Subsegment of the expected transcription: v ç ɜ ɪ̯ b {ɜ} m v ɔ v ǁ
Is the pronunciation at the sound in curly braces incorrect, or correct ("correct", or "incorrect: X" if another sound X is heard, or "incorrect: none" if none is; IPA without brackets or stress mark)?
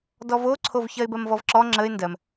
correct